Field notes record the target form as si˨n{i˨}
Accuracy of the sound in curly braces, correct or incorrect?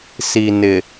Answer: incorrect: ɪ˨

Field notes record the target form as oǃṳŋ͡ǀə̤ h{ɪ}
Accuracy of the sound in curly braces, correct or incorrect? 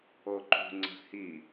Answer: incorrect: i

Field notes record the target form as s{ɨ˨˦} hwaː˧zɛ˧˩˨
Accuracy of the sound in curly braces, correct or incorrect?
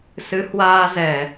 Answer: correct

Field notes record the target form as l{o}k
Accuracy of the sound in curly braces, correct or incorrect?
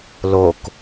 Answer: correct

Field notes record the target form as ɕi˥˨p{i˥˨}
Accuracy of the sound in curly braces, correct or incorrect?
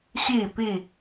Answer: correct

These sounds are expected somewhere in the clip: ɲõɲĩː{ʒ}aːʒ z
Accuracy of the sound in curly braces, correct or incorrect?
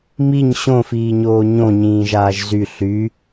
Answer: correct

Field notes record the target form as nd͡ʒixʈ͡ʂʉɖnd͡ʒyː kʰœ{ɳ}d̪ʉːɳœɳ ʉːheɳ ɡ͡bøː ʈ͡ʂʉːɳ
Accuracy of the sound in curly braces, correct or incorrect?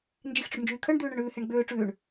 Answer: correct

